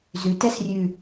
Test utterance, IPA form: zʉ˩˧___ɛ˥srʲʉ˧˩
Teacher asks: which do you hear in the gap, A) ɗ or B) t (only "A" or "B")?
B